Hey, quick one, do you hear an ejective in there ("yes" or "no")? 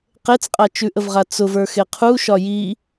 yes